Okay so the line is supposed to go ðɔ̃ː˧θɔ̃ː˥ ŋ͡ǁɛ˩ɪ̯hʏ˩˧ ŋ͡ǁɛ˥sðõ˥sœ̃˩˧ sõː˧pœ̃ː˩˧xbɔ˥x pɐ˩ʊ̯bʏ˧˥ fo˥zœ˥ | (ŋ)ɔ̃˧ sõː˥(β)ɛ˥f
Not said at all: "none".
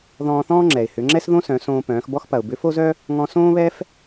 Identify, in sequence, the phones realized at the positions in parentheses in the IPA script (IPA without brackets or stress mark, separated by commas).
ŋ, β